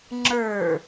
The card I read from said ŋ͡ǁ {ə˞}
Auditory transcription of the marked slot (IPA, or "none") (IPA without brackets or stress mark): ə˞